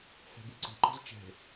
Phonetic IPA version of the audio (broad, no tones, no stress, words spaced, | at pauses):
hɛ̤beǀe̤ ǃɔ̤zt͡ʃɛ̤